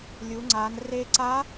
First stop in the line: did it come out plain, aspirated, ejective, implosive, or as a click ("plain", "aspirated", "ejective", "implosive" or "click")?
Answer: click